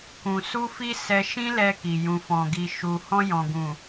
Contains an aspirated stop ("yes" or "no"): no